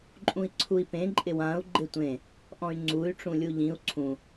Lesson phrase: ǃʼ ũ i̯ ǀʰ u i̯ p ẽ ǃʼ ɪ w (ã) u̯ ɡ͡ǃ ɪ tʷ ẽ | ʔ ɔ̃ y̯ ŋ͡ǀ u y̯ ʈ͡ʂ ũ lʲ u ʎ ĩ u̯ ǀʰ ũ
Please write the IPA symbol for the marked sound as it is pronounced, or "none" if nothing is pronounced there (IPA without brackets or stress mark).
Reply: ã